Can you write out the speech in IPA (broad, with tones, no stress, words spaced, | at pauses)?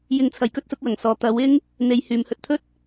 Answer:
jɪ˨˧ŋt͡sʰɐ˨j kɵ˥t̚sʊ˨˥k̚wɐ˨˩ŋsɔː˨˧ t̪ɐ˨˥wɪ˥ŋ | n̪e˨˧jhyː˨mhɵ˧t̚t̪ʰɵ˥t̚